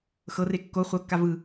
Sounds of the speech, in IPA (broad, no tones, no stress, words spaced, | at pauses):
xɤre kːo χʷɤkːa vɯ